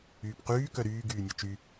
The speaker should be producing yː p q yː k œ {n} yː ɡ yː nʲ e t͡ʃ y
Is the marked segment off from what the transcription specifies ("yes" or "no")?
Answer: yes